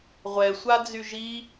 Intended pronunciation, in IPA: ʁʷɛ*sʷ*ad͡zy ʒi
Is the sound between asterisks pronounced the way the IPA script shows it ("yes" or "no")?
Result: yes